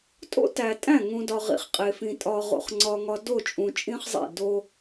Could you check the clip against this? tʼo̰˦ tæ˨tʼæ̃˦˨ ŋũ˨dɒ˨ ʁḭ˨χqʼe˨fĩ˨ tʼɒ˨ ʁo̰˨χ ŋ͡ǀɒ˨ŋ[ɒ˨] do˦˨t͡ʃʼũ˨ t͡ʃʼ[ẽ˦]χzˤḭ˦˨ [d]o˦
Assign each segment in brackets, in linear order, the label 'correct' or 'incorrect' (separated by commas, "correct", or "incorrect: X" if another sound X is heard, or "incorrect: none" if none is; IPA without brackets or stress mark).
correct, incorrect: ĩ˦, correct